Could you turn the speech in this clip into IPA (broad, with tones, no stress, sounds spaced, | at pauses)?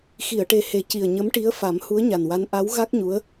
x i˨˩˨ ə̯ ʈ e˨˩ h e˨˩˦ c i˨˩ ə̯ ɲ ə˧˥ m ʈ i˧˥ ə̯ f a˨˩˦ m h u˧˥ ə̯ ɲ a˨˩ n w a˧˥ n ʔ a˧˥ w ɣ a˦˥ k̚ ɲ u˧˥ ə̯